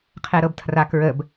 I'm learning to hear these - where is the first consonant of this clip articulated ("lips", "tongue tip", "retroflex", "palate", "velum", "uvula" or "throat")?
uvula